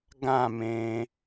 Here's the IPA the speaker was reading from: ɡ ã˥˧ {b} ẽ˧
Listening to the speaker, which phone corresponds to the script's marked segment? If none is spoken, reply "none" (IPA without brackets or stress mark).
m